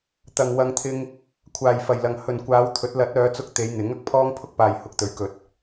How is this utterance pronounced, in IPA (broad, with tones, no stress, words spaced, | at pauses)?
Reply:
t̪ɐ˨ŋwɐ˧ŋt̪ʰɪ˧ŋ | kʷʰaː˨˩jfɐ˨˩jlɐ˨˩ŋ hɵ˨˩n kʷaː˨˧wt̪ʰɵ˨˥t̚ lɐ˨˥t̚ œː˨˧t͡sʊ˧k̚ t̪e˨˧jn̪ɪ˨˥ŋɐ˧k̚ pʰɔː˥ŋpʰʊ˥k̚paː˨j hʊ˧k̚t̪ɵ˨˥ɥkɵ˨˥t̚